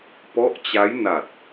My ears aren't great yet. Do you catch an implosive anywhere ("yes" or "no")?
no